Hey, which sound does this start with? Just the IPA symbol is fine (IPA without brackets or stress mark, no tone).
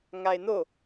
ŋ